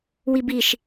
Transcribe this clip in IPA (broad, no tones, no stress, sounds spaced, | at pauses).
w i b i ʃ